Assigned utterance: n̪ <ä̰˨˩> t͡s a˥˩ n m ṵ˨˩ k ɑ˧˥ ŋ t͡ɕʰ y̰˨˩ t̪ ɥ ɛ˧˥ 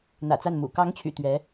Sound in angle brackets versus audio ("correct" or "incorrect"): correct